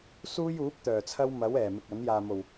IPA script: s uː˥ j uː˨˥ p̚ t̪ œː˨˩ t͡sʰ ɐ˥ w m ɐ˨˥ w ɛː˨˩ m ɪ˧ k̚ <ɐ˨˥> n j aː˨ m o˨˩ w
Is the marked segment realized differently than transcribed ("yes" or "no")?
no